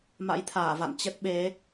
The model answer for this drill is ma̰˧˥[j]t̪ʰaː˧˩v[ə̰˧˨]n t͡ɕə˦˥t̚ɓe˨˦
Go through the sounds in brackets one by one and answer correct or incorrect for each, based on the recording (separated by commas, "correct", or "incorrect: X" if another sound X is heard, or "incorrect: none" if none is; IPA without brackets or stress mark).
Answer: correct, incorrect: a̰˧˨